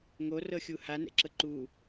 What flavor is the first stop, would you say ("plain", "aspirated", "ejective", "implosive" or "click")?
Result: click